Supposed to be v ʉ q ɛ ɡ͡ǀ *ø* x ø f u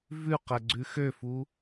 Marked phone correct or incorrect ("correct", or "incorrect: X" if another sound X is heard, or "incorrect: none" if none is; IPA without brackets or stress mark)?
incorrect: ʉ